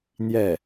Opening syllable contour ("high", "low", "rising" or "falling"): falling